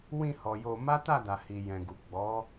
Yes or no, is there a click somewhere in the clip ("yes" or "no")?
no